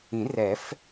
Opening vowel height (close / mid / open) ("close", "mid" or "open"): close